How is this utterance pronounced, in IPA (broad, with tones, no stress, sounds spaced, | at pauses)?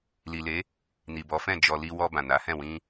l i˨ l e˨˦ | n i˨ b ɔ˨˦ f ɛ̃˦˨ d͡ʒ ɔ˨ l i˧ w ɔ˧ b ã˨ n a˨˦ h ɛ̃˦˨ w ĩ˧